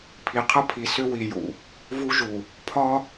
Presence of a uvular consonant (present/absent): present